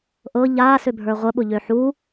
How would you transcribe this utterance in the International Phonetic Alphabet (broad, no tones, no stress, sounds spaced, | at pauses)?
ʔ ɤ ʎ a s ø bʱ ə˞ ʁʷ ə ɓ ʊ ʎ ø ħ u